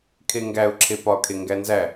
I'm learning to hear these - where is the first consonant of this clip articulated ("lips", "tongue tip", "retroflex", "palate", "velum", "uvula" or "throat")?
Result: velum